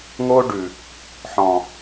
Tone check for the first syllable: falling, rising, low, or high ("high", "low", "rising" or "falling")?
high